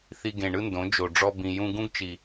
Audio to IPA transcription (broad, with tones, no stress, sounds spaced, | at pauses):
θ i˧ ɡ ẽ˨ ɳ ɯ˦ n d õ˨˦ d͡ʒ o˨ ɖ͡ʐ ɔ˧ b ĩ˨ j ũ˧ ɡ ũ˦ ɡ t͡ʃ i˨